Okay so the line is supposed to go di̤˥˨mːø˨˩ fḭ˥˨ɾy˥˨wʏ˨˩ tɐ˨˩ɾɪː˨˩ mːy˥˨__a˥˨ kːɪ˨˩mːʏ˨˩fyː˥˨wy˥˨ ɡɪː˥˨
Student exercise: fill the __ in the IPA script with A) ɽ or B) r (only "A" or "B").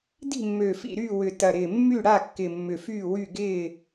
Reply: A